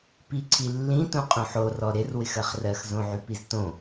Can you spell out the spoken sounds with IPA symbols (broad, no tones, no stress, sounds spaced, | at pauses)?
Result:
p i ǀʰ i lː ĩ t ũ qʼ ũ ħ o r ɔ ɾ ɪ r w ɪ x ɜ χ r ɜ x z õ ʕ y p i z t õ